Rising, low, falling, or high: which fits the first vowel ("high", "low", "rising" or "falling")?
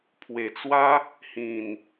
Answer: low